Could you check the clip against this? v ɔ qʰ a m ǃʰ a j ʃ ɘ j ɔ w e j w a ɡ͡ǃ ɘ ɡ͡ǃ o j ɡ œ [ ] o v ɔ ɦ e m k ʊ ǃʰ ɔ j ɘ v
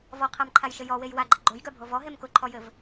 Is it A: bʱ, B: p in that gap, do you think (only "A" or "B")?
A